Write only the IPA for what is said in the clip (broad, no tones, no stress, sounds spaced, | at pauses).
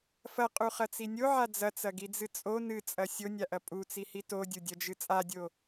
f ɐ qʼ u χ ɐ t͡s i nʲ o ʕ a d͡z ɐ t͡s ɐ ɡ i d͡z ɨ t͡sʼ o n ɨ t͡sʼ ɐ sʲ o nʲ a ʔ ɐ pʼ u t͡s i h i t o dʲ u dʲ ɐ d͡ʒ ɨ t͡sʼ a dʲ o